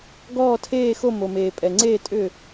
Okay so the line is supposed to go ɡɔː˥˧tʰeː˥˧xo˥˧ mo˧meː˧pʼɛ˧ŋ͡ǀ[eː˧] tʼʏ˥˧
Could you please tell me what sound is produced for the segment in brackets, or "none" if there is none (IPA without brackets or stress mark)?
eː˥˧